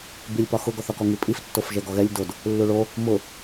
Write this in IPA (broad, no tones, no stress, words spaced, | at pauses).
bilʲpɒ xʊɡɔθɒkɔ ŋipʼiftːofʒɛ ɡɔɣɛlʲ dod | lːuɭo | mʊ